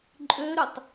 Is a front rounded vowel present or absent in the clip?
present